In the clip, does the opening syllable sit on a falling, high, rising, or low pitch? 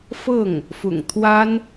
falling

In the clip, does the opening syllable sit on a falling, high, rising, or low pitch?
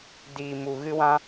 low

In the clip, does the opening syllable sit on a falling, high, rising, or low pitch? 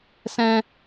high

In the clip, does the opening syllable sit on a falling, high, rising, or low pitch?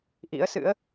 rising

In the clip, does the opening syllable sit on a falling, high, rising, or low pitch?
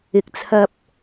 low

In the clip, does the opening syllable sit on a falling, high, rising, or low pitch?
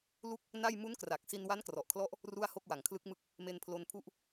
falling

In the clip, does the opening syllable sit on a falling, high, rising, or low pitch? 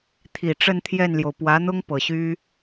low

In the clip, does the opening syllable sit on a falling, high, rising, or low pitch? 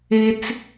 high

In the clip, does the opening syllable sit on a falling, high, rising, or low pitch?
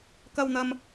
high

